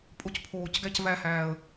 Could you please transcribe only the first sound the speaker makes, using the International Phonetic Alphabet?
pʼ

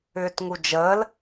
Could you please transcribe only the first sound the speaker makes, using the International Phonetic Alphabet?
ʏː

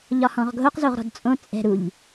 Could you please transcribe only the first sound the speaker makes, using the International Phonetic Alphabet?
ʎ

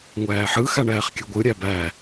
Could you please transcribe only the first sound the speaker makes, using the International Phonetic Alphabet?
ŋʷ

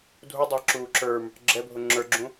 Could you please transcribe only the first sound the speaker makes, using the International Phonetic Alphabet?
dʱ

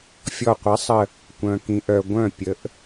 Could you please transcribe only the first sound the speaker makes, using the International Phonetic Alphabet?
fʲ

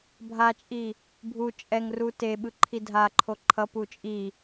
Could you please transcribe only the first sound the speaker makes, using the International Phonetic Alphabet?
bʱ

